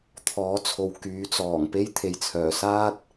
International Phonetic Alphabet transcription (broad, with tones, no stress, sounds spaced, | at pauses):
t̪ʰ ɔː˨˥ t͡sʰ o˨ w k yː˨˥ t͡s ɔː˨˩ ŋ p e˥ j t̪ʰ e˨ j t͡sʰ œː˨˩ s aː˥ t̚